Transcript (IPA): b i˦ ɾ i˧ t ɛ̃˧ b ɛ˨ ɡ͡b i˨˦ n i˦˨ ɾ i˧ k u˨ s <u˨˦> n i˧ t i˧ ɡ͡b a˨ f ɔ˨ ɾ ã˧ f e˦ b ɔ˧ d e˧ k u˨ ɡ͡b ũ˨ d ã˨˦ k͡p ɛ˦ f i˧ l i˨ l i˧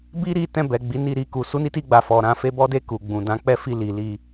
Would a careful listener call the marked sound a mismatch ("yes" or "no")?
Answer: no